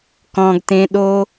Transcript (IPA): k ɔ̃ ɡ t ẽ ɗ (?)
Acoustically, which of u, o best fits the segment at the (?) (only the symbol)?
o